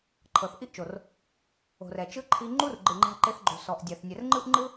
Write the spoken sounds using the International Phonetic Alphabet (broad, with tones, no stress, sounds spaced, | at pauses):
ǃʰ ɤ˨ θ ʔ i˦ ʔ t͡ʃ o˨ r | o̤˨ r ɛ˨ t͡ʃ ɯ˦ ǃʰ i˧ ŋ͡ǃ u˦ r ɡ͡ǃ ɯ˨ ŋ͡ǃ a̤˧ ǃ e˧ θ ɡ͡ǃ o̤˨ s ɔ˨ ʔ dʲ a˨ θ nʲ ɛ˨ r ŋ͡ǃ ɯ˦ ʔ ŋ͡ǃ ɯ˦